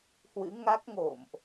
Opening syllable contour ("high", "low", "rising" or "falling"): rising